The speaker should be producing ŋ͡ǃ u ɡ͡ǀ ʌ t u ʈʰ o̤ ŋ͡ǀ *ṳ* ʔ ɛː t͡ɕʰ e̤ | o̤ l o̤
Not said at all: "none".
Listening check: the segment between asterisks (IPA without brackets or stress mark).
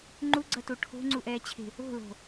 u